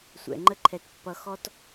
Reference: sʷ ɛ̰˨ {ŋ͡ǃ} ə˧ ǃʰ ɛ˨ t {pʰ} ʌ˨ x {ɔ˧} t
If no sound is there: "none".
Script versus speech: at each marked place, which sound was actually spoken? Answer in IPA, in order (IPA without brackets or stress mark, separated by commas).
ŋ͡ǃ, pː, ɔ˧